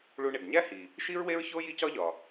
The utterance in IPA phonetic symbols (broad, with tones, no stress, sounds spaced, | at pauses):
ɭ u˧ ɳ e˩ ɡ ɲ æ˥ h i˩ | ʃ i˥ ɹ w e˥ ɹ ç o˥ j i˥ c ɒ˥ ʎ ɒ˩